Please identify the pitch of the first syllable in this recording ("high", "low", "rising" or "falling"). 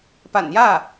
low